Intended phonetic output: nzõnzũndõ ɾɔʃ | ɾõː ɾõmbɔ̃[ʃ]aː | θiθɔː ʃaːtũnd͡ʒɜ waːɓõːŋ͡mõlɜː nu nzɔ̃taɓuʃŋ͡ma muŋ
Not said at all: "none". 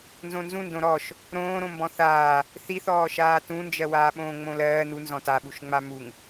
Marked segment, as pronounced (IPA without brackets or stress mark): θ